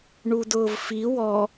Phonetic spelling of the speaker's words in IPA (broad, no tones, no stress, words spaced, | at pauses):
ɳudʊːvfi wɔ